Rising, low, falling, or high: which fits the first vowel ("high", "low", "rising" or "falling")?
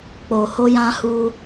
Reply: low